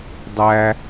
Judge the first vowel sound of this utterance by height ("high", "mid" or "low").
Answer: low